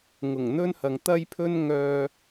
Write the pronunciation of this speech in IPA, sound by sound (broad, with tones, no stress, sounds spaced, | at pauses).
ŋ ʊ˨˩ ŋ n̪ ɵ˥ n h ɐ˨ ŋ t̪ ɐ˥ j pʰ ɵ˥ n ŋ œː˧